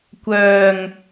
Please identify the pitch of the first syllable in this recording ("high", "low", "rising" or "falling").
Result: low